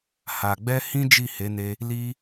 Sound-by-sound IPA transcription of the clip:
h a˨ ɡ͡b ɛ˧ h ĩ˦ d͡ʒ i˦˨ h e˨˦ n e˧ | l i˧

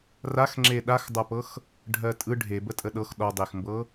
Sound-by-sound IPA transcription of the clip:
r a x ŋ͡ǁ e ɗ a x dˤ a p ɤ x | ɖʱ ɜ tʼ ɯ ɖʱ e b ə tʼ ə ɗ ɤ x ɗ ɔ dˤ e x m b ɤ

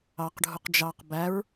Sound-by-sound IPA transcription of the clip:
ɑ q ɖʱ u q d͡ʒ ɑ q b æ ɹ

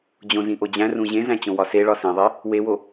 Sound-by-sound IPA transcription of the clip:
d͡ʑ õ z ĩ ʔ o d͡ʑ æ̃ r ũ ʑ ẽ z æ̃ t͡ɕ õ w ɒ s e ɭ ɒ s ĩ ðˤ i | w e w o

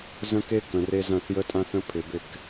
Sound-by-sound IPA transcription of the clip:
z ə̃˦ k e˦ k ə̃˨ r e˦ z ɐ̃˦˨ θ j ə˦ tʼ ã˦ θ ə̃˦ pʰ ɪ˨ b ɪ˦˨ k

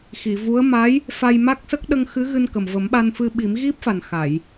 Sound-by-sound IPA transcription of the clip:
x i˨˩˨ v u˧˥ ə̯ m a˧˥ j | f a˧ j m a˦˥ k̚ s ə˦˥ k̚ ɗ ə˧ ŋ x ɨ˧˥ ɣ ɨ˧ n k ə˨˩ m v ə˨˩˦ m ɓ a˧ n f ɨ˧ ɓ i˨˩˦ m ɣ i˦˥ p̚ f a˨˩ n x a˨˩˨ j

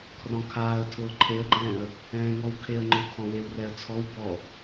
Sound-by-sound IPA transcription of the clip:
kʰ r ɔ̃ kʰ aː ə̯ tʰ ʊː ǃʰ e ə̯ ɡ͡ǃ ɛ̃ː ə̯ | ɛ̃ː ŋ ɔ w kʰ e ə̯ ŋ͡ǃ ʊ kʰ ɔ̃ w e w r ɛ ə̯ t͡sʰ ɔ w b ɔ

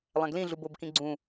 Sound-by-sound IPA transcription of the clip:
lˠ æ̃ ɡ l ĩ ɮ u b o b k ĩ ɡ͡ǀ ũ

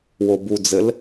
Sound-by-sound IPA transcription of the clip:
w o b u d͡z ɘ l

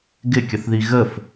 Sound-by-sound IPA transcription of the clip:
ɡ ɪ kʲ ə θ ð i ɣ ə f

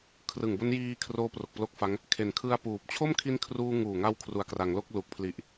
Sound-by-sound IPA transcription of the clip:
kʰ r ɯ˨˩ ŋ b o˦˥ n j iː˧ kʰ r oː˦˥ p r o˨˩ k̚ p l o˦˥ k̚ f a˦˥ ŋ | kʰ e˨˩ n kʰ ɯ˧ a̯ p uː˨˩ p̚ t͡ɕʰ o˥˩ m kʰ i˦˥ n kʰ r uː˧ ŋ uː˨˩ ŋ a˧ w kʰ r u˨˩ a̯ k r a˩˦ ŋ l o˥˩ k̚ l u˨˩ k̚ pʰ l i˨˩ ʔ

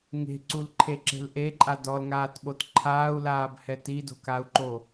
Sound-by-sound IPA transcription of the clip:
ŋ e̤ ǀ u l ǃʰ e ǁ e̤ l ʔ e ǃʼ a d ɔ l ŋ aː t ɓ o t ǃʰ aː u̯ l aː b h ɛ t i d o̤ k a u̯ ǃ o

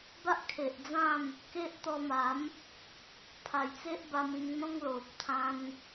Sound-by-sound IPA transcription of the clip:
b a˦ ʔ kʰ e˨ ʔ d͡z ã˥˧ m | k e˦ ʔ t̪ ɔ˧ m a˨˦ m | pʰ a˨˩ j t͡s e˦ ʔ b a˧ m ĩ˧ ŋ n̪ ɔ̃˦ ŋ l o˨ p̚ t̪ʰ ã˧ n

